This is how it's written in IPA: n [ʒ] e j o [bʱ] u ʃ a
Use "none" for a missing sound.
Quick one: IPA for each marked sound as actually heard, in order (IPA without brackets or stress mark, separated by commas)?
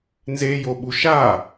z, ɓ